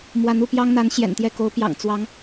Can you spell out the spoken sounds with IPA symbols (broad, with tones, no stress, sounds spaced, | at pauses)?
m w a˧˥ n u˥˩ p j ɑ˥ ŋ n̪ a˧˥ n ɕ j ɛ̰˨˩ n t̪ j ɛ˥˩ k o˧˥ ʊ̯ p j ɑ̰˨˩ ŋ t͡s w ɑ˧˥ ŋ